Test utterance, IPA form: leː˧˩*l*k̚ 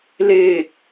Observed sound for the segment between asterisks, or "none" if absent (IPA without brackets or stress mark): none